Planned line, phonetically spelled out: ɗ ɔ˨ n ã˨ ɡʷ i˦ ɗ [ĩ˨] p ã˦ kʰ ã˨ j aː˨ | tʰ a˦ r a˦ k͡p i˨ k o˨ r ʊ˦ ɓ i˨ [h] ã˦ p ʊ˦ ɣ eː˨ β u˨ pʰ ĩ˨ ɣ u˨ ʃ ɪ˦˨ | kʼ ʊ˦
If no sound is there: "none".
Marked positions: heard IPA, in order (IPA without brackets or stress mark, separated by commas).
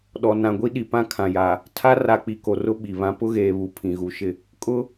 i˨, β